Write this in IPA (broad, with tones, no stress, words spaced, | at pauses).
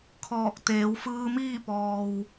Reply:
kʰɔː˧˩k̚ t̪eː˩˧wfɯː˧miː˥˨pɔː˩w